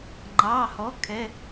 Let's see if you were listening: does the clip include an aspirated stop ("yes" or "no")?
yes